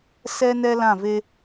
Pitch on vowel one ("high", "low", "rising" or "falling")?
high